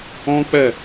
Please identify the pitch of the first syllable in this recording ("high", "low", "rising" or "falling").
high